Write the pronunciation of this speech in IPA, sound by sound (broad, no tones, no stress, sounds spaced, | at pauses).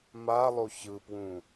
m a lˠ o ç ɯ p w ũ